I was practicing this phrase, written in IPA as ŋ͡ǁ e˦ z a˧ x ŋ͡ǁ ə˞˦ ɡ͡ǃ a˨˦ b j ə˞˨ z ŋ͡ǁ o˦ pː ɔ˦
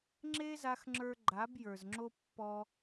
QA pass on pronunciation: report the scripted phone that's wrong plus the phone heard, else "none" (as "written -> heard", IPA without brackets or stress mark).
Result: none